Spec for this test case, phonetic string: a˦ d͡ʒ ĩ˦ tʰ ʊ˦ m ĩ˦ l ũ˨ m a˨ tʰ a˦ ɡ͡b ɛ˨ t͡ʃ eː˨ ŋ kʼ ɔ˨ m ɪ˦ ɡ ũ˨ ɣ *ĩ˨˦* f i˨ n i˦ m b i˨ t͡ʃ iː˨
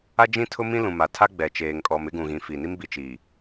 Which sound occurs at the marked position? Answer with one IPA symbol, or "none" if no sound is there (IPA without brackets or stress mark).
ĩ˨˦